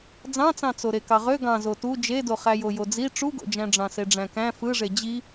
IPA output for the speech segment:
d͡zɑ̃t͡sɑ̃ t͡soɾekɑʁø ɡɑ̃zo tu d͡ʒedo χæjojod͡zi ʈ͡ʂuɡo̰d͡ʒæ̃ ɖ͡ʐɑ̃seɖ͡ʐæ̃kæ̃ fɯʐe d͡ʑi

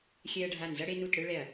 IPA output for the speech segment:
xʲɛ˧ɐ̯ɖʱa˧˩n zʌ˧ɽe˧nu˧˩t ɽɯ˧ɭɛ˧˩ɐ̯

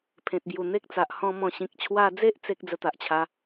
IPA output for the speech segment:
pʰẽ˨t̚bju˨˩n̪e˦k̚t͡sa˨ʔ hɔ̃˧ mɔ̃˨˩ ɕĩ˨k̚ t͡ɕʰwa˧d͡ze˦ʔ t͡se˦k̚ d͡zə˧t̪a˨ʔt͡ɕʰa˧

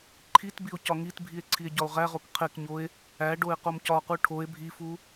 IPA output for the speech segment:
ǃʰitbio̯ cɒŋitbʱie̯ ǀʰie̯ɟɒo̯ʁæʁok qʰekɲoe̯ | æ ɖoe̯qomcɒqu ʈʰoe̯ bʱifu

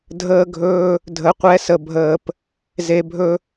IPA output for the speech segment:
dʱəː˦ɡʱɵː˦ | dʱə˧qʷɛ˦sə˧bʱəː˧p | ze˧bʱɵ˦

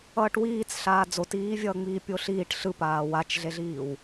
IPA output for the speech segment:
ʌːʈwiːt͡s ɬaːd͡zotiːvʲʌː ŋ͡miːpʲoɬiːʈ ɬɯ paːwat͡ʃɮeɮiːw

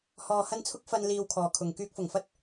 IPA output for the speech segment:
hɔː˨hɐ˧nt͡sʰʊ˧k̚ fɐ˨n liː˧wkʰɔː˨kʰʊ˨ŋ kyː˧k̚fʊ˨˩ŋfɐ˥t̚

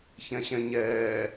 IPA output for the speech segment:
çɛ̃ɕɛ̃ɲɛː

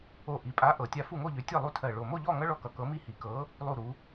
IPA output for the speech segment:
o˧˩ʔi˩˧pʼa˨˥ ʔɤ˩˧tʲa˦ fu˥˨ŋo˥˨ʎø˨˥tʲɜ˥˨ lˠu˦tʰɜ˧˩ɭo˧˩ mo˥˨ʎɔ˥˨ŋʌ˦ ɭɔ˦kʌ˩˧ kɤ˨˥mi˦hi˩˧kɤ˨˥ | lˠu˧˩ɾu˩˧

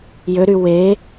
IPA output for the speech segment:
jøɾy we

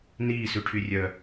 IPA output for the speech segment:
niːsʉʈʰyrʲœ

